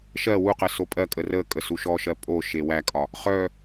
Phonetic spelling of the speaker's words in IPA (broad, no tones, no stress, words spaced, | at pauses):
ʃɜ wuqɜ sopʼɜkʼə rə kʼəsuʃɔʃɜ pʼo ʃewækʼɒ | χœ